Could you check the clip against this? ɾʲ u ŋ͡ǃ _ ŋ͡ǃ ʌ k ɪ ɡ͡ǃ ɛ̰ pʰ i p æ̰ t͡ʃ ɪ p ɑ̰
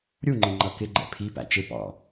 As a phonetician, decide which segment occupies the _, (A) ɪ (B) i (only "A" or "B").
A